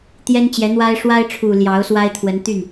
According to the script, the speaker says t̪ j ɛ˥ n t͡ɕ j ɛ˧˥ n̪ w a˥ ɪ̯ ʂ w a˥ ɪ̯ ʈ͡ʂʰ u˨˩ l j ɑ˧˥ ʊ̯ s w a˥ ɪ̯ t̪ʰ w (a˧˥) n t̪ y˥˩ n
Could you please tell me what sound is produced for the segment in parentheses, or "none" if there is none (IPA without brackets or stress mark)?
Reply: ə˧˥